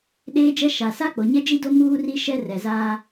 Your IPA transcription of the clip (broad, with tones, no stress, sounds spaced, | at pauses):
ɗ eː˦ d͡ʒ ɛ˦ ʃ a˨ s a˦ k͡p o˨ ɲ ɛ˦ d͡ʒ i˦ d o˦ m uː˦ r i˦ ʃ ɛ˦ r ɛ˨ z aː˦